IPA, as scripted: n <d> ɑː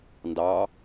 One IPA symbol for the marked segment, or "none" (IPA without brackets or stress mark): d